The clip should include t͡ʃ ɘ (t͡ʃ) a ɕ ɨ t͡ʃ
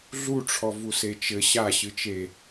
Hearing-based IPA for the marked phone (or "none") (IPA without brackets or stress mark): ɕ